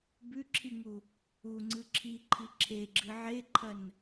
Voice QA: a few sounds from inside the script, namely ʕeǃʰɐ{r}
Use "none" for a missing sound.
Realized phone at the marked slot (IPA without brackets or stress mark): n